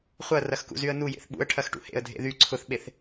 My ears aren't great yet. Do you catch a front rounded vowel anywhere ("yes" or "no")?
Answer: yes